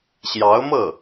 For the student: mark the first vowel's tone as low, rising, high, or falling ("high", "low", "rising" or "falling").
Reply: rising